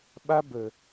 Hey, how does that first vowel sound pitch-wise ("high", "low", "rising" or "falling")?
high